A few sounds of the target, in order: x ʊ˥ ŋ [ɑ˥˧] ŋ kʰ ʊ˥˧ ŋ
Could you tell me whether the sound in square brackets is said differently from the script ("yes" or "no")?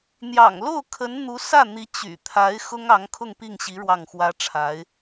yes